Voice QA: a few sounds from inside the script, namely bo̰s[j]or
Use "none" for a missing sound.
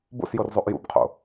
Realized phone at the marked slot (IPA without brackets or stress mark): j